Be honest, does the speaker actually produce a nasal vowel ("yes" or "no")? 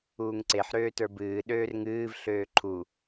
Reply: no